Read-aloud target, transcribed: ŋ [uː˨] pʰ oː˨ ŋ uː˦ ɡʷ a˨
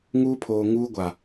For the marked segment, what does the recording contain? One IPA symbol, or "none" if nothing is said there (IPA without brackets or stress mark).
uː˦